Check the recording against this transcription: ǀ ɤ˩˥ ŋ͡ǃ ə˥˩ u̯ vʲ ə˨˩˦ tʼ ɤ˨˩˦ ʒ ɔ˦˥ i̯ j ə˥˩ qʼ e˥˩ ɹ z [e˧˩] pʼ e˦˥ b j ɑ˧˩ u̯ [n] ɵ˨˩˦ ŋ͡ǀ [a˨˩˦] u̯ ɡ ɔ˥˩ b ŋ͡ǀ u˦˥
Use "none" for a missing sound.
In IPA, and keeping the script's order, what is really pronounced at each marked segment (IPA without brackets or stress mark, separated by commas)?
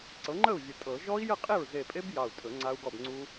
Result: e˧˩, tʼ, a˦˥